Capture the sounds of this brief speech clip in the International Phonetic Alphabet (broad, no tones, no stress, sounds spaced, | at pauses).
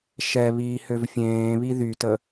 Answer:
ʃ ɛ β iː h ø v fʲ ẽː β i ð y t ə